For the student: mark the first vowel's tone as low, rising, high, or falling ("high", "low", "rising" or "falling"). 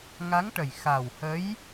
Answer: rising